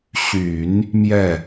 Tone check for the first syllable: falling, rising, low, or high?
low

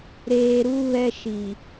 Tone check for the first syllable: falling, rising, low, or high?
low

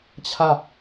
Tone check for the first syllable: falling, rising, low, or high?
falling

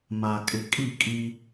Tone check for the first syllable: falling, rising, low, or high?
low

